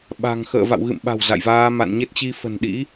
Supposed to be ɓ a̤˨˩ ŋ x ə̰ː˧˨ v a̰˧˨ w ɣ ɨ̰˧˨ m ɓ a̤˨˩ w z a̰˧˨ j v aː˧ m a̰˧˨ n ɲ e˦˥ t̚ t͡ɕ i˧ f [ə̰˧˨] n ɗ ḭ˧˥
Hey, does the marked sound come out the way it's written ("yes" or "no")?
no